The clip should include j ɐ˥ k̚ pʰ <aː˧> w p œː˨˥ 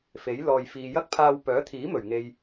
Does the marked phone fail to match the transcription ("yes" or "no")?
no